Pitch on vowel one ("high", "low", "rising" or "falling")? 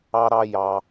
high